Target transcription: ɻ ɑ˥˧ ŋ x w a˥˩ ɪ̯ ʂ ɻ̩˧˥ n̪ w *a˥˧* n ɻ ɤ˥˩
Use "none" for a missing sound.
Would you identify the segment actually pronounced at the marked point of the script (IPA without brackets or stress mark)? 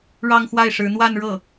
a˥˧